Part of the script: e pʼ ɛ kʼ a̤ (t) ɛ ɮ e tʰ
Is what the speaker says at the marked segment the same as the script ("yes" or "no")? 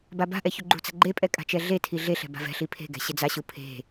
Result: no